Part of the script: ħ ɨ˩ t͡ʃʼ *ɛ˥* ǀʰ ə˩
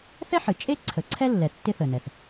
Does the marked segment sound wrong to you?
yes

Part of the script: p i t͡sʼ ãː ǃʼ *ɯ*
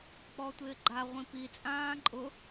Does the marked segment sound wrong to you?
yes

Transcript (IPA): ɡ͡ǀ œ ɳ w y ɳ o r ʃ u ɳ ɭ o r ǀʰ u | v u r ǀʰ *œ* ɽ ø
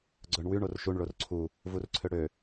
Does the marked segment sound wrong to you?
yes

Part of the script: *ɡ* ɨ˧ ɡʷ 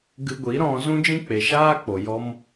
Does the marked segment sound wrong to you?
no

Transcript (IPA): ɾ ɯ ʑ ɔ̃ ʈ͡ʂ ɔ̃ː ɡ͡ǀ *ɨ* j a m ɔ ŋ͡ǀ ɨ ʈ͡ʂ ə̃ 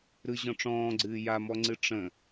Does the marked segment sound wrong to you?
yes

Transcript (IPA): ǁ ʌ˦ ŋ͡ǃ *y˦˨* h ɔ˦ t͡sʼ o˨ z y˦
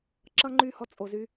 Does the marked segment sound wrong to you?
no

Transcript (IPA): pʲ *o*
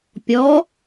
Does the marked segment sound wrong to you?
yes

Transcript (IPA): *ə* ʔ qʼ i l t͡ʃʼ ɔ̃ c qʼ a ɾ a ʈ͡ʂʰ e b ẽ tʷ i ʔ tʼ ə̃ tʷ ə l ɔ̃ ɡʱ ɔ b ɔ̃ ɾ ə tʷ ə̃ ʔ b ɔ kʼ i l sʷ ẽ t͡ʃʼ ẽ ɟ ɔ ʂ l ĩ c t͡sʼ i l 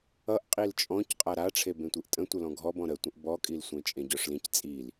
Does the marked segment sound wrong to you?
yes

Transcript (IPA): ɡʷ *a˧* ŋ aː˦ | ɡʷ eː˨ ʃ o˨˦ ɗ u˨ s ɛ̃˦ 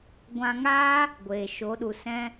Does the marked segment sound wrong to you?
yes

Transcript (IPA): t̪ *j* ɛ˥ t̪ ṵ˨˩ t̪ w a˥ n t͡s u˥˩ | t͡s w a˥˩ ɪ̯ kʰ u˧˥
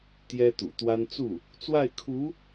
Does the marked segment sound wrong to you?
no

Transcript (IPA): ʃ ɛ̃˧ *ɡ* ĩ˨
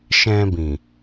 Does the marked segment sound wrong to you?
yes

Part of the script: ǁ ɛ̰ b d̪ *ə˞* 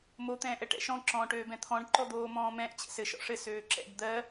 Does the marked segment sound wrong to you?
yes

